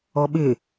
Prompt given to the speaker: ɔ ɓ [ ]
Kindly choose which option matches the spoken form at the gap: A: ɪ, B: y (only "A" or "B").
A